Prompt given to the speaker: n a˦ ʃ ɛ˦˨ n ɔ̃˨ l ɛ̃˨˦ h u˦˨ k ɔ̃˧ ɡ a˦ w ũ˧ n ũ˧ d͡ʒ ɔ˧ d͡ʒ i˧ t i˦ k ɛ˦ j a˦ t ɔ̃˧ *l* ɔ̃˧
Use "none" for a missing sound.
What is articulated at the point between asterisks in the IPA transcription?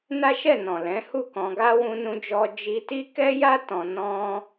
n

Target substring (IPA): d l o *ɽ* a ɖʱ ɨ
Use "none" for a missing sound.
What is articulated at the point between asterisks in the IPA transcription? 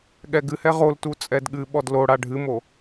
ɽ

